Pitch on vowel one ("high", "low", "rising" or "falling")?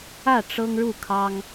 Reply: falling